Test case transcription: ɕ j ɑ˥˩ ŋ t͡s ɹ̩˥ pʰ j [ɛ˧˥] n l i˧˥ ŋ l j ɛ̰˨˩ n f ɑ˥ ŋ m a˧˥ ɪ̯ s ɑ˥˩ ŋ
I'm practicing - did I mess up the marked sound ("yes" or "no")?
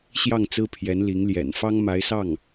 no